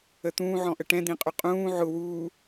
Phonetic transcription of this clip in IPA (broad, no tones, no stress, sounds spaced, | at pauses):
ə t̪ ũː ʕ ɔ̃ ʔ ə ʈ ɛ̃ d̪ ĩ qʼ ʊ qʼ ũː ʕ ʊ w uː